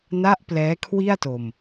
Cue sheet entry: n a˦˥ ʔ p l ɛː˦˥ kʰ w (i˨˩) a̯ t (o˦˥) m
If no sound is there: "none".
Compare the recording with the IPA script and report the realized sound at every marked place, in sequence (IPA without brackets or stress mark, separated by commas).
i˥˩, o˨˩